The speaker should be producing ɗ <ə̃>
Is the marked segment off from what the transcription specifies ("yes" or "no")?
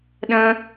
no